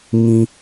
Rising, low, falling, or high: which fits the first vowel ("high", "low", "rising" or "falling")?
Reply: low